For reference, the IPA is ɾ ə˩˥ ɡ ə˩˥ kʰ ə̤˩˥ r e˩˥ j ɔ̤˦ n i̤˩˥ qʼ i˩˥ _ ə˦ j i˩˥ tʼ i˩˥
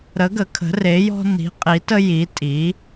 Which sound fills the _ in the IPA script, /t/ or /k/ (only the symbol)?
t